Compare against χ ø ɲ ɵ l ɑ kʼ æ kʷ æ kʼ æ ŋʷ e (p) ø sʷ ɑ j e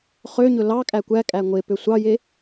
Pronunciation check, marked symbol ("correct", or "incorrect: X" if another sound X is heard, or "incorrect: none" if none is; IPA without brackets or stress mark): correct